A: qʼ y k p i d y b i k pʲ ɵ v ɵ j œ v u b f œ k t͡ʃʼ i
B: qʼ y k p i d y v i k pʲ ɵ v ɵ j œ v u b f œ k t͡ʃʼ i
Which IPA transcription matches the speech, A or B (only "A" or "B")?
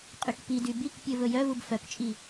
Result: A